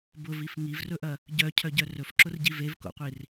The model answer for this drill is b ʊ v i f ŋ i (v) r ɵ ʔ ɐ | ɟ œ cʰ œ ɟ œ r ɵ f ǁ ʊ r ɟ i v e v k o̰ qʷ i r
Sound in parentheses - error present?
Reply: no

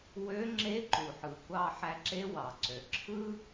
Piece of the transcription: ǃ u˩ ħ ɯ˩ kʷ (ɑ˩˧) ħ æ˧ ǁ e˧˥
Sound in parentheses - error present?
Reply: yes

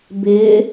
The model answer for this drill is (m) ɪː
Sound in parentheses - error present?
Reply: yes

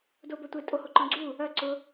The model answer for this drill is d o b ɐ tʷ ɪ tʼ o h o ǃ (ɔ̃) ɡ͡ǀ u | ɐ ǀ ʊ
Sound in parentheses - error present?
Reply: no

